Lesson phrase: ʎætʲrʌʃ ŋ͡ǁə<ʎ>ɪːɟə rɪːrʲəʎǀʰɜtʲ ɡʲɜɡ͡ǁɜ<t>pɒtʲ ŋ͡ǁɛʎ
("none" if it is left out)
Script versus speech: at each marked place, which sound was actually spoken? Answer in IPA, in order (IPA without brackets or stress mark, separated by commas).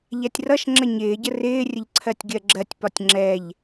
ɲ, tʲ